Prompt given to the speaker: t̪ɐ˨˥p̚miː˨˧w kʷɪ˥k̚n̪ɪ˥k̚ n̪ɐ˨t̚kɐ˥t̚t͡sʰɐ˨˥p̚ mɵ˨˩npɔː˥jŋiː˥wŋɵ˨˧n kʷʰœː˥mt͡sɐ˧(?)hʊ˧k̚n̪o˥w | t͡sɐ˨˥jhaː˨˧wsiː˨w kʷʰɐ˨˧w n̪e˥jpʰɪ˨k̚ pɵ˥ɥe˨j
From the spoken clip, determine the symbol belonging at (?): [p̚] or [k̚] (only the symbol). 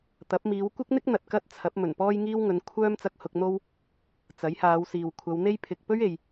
k̚